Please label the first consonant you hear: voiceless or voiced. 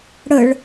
voiced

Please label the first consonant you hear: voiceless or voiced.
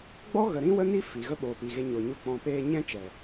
voiced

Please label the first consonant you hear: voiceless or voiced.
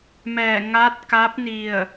voiced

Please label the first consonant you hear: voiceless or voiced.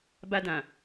voiced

